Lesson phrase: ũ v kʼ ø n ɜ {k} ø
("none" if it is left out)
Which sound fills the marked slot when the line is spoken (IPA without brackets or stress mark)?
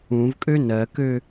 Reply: k